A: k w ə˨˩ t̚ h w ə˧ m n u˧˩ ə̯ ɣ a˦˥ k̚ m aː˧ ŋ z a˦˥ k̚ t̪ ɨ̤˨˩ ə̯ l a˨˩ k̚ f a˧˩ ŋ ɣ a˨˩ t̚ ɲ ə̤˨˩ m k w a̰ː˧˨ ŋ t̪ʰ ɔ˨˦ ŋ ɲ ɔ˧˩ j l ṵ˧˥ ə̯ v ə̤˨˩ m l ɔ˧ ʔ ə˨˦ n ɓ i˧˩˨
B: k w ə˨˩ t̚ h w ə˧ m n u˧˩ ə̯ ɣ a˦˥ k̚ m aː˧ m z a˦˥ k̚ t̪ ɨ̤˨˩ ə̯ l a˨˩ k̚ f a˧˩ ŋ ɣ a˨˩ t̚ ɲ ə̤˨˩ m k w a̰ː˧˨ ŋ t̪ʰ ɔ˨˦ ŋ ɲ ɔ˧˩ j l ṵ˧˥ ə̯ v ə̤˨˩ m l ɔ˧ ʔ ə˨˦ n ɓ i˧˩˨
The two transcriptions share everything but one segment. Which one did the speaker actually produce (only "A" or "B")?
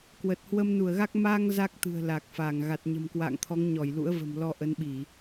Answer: A